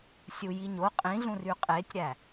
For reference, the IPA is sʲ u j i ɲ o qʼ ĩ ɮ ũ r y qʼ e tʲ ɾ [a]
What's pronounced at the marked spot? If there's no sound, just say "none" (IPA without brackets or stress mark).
æ